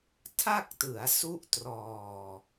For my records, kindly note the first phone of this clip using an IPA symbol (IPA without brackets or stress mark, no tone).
tʰ